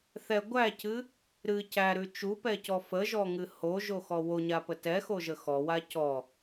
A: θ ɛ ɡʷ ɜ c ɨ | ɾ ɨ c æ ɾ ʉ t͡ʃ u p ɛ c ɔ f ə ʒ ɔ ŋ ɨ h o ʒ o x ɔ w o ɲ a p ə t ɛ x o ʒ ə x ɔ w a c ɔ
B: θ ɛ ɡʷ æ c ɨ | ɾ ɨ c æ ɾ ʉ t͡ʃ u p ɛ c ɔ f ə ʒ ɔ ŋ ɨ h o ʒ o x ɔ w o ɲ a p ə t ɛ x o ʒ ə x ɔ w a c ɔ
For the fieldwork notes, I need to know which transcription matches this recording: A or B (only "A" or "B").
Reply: B